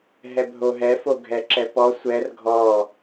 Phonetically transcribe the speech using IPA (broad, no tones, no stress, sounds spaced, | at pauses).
ɦ ɛ bʱ o ɦ ɛ f o ɡʱ ɛ ǁ ɛ p ɔ sʷ ɛ r ɡʱ ɔ